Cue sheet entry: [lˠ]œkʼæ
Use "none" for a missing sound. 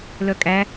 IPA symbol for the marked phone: l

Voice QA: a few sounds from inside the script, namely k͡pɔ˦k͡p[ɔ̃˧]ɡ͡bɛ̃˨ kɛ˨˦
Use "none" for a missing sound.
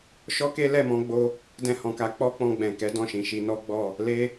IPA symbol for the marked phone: ɔ̃˧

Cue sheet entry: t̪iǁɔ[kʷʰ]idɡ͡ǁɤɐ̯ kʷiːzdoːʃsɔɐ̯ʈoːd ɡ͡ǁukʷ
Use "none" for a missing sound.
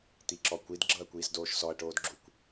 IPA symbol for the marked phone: kʷ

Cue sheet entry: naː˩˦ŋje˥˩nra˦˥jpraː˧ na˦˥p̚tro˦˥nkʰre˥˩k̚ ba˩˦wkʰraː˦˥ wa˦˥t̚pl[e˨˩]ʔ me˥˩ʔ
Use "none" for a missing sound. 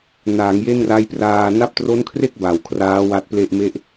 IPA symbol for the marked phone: e˥˩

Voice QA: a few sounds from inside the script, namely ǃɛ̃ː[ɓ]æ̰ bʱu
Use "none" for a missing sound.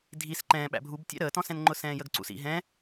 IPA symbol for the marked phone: ɓ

